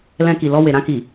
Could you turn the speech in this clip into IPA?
lɛ̃˧ki˨lɔ˧we˨ ɾã˧ki˨

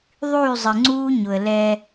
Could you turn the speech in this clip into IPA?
ðˤyː˦˨zˤɪ˨ŋ͡ǀuː˦ɲʊ˨ə̯ lɛ˦

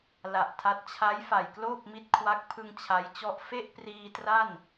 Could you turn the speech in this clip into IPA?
la˨˩ʔtʰa˦˥t̚ t͡ɕʰa˦˥j fa˨˩jkloː˥˩p̚mi˦˥t̚ kʰwa˦˥k̚ pʰɯ˧ŋ t͡ɕʰa˦˥jt͡ɕɔ˥˩ʔ fe˥˩ʔpriː˧tra˥˩n

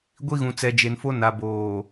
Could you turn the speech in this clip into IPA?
ɡʷi˦ɣũ˨ t͡sɛ˨d͡ʒe˨nfo˦ na˨boː˨

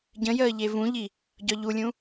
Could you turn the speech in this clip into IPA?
ɟə̃jəː ʎevũʎi | ɟɒʎulʲũ

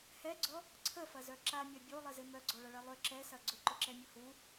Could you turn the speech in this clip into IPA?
hɛɡ͡ǀɔ | ǀʰəfɐzœ ǁamʲa bʲolˠɪzɪ mœɡ͡ǀɔɭɐɭɛ lˠʏ ǁɛsɐ ɡ͡ǀʊǃʊǁɛmʲʊ hu

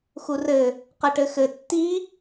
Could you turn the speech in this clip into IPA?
xurɘ | qɘʈɘxɘ tːi

